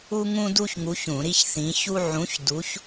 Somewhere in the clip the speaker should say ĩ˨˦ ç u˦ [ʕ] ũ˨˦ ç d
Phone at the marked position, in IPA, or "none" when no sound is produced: ʕ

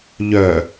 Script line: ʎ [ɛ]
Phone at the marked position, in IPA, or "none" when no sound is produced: œ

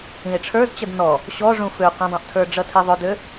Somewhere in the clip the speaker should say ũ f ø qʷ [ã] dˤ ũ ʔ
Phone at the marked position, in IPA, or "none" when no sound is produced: ə̃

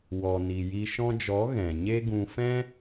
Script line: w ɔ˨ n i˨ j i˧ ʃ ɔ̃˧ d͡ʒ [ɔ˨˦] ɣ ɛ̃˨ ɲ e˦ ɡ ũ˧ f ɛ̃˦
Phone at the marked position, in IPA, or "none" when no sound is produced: ɔ˨˦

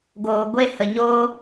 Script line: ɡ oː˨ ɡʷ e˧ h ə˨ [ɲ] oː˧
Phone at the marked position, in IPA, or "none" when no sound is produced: ɲ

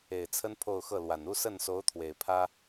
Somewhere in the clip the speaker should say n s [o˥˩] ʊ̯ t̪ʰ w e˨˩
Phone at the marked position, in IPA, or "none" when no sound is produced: o˧˥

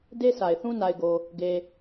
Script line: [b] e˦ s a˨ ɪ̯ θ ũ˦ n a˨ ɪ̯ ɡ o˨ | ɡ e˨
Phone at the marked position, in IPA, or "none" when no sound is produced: d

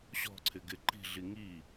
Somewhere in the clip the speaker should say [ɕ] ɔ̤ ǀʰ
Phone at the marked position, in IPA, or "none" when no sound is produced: ɕ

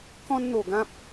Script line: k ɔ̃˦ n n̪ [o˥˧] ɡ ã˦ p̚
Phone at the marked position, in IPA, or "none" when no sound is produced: o˨˩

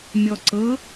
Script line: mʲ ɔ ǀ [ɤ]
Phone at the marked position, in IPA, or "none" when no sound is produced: ɤ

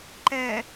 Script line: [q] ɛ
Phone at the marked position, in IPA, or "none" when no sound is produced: ǃ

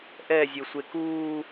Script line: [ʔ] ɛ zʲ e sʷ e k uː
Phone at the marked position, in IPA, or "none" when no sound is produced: ʔ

